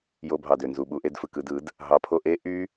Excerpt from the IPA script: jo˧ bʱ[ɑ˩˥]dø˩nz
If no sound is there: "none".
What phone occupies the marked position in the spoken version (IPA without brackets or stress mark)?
ɑ˩